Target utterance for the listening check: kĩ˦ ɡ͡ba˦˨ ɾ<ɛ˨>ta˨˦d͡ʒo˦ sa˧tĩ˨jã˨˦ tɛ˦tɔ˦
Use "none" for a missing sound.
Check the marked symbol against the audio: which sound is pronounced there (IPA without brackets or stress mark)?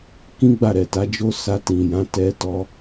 ɛ˨